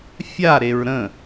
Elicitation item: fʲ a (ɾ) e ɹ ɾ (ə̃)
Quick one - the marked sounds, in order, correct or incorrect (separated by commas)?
correct, correct